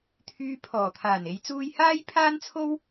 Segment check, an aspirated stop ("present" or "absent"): present